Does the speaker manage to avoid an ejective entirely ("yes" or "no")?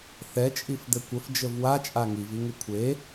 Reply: no